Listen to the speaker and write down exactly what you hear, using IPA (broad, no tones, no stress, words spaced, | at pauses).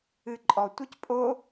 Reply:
ɨǃʼɔtʷɨc pʼo